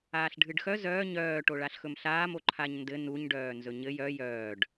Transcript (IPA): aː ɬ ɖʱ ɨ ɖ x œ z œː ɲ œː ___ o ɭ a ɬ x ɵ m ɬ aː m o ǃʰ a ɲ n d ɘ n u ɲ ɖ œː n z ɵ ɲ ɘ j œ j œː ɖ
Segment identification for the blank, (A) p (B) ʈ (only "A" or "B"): B